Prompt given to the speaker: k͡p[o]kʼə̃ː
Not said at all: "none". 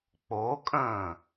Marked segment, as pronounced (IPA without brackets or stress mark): o